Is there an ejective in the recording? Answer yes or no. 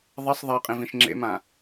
yes